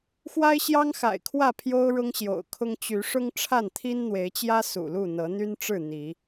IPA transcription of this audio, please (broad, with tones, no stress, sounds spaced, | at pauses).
x w a˦ ɪ̯ ɕ j ɑ˦ ŋ x a̰˨˩ ɪ̯ kʰ w ä˥˨ pʰ j o˦ ʊ̯ ɻ ʊ˦ ŋ ɕ j o̰˨˩ ʊ̯ kʰ ʊ˦ ŋ t͡ɕ y˨˦ ʂ ʊ˦ ŋ ʈ͡ʂʰ a˥˨ n t̪ʰ i˦ n n̪ w e˨˦ ɪ̯ t͡ɕ j ä˦ s ṵ˨˩ l u˥˨ n̪ ɤ˨˦ n̪ y˦ n ʈ͡ʂ ɻ̩˥˨ n̪ i˨˦